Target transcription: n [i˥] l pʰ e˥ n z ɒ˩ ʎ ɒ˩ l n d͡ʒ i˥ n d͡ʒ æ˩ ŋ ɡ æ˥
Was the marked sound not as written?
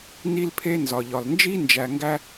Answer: no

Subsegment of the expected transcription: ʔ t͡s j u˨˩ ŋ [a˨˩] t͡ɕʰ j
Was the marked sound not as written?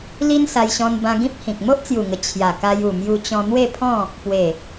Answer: yes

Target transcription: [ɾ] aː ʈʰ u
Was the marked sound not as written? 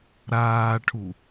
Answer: no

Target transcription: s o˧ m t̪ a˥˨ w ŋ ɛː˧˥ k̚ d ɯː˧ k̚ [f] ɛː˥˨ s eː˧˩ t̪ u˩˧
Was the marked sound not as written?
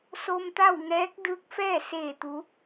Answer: no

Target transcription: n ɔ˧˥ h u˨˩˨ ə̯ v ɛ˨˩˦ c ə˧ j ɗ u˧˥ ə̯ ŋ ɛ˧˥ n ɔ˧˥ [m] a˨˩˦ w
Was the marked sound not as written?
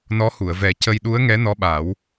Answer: yes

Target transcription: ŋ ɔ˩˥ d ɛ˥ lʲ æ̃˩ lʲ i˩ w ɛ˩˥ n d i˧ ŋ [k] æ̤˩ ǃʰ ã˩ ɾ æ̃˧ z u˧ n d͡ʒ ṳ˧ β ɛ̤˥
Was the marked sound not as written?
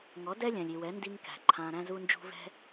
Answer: no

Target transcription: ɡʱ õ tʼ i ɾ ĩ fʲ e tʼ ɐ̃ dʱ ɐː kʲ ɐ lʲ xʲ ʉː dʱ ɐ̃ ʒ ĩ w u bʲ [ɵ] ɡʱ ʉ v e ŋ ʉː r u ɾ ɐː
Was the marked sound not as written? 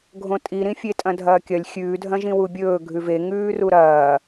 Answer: yes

